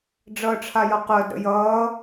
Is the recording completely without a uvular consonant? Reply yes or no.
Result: no